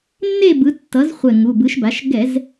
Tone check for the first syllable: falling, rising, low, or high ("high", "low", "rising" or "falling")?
falling